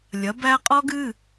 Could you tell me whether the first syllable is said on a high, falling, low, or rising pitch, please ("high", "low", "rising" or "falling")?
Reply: rising